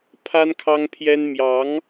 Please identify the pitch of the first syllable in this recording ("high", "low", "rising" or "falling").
high